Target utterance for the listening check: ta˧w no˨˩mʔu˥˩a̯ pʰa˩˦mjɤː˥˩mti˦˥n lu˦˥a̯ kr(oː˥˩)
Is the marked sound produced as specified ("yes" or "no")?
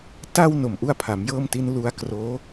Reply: no